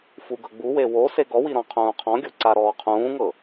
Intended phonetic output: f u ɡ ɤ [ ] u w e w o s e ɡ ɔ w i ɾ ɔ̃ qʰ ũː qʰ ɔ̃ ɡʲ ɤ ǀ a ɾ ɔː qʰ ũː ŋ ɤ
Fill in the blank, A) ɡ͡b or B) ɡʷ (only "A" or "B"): A